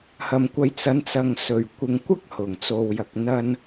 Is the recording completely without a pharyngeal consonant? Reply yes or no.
yes